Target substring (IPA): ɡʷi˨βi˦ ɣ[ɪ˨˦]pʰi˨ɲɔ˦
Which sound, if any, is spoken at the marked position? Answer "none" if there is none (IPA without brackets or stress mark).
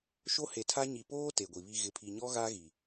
ɪ˨